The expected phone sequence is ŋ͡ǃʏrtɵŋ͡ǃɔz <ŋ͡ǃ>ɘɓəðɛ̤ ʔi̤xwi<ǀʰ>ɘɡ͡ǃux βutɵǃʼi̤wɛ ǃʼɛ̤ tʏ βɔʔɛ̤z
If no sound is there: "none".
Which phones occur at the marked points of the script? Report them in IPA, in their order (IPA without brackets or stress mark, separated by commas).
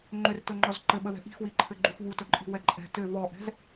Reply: ǃ, ǃʰ